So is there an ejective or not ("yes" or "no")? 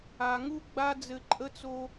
yes